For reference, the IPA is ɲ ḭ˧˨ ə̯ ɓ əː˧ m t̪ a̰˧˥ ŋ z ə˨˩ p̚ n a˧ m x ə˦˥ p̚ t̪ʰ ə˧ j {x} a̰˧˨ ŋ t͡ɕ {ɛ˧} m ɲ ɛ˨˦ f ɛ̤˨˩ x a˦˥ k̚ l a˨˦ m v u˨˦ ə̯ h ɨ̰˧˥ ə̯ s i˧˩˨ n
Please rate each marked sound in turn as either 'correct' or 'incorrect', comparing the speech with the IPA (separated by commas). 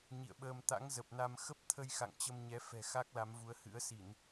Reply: correct, incorrect